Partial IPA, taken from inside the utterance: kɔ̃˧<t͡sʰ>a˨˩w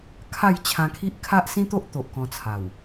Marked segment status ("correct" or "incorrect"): correct